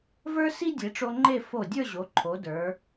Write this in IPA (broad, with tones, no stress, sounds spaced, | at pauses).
v ə˞˥ s i˥ dʲ e˩˧ ʈ͡ʂ o˧ ŋ͡ǃ e˥˧ f o˧˩ dʲ ə˞˥˧ ʑ o˩˧ ǃʰ o˩˧ d ə˞˩˧